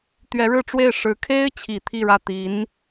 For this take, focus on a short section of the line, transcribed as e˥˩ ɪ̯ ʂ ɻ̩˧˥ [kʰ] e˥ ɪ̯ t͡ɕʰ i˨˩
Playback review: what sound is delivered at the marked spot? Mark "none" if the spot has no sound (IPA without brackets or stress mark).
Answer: kʰ